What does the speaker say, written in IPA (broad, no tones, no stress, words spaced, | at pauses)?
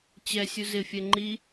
t͡ɕɛsʲu zɪfʲɛ ŋ͡ǃi